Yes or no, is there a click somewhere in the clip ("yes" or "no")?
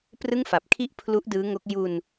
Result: no